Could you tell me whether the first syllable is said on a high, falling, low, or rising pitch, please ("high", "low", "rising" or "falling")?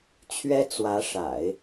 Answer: high